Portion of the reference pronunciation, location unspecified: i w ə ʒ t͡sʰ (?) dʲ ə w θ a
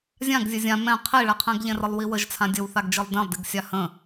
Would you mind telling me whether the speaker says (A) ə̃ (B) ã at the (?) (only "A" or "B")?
B